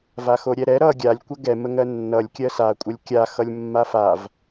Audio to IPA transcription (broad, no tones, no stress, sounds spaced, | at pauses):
v a x o ɾʲ ɛ ɾ ɛ ɾ ʌ ɡʲ a lʲ kʷ ə ɡ ɛ m ə ŋ ɜ nː ʌ lʲ kʲ ɜ s a kʷʼ ə lʲ kʲ a x ʌ lʲ mː a f a v